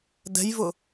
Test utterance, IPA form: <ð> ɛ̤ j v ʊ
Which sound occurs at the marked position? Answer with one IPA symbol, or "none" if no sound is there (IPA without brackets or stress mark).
d